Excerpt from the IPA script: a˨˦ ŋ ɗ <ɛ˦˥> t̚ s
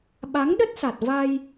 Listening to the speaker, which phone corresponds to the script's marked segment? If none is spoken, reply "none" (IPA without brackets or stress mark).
ə˦˥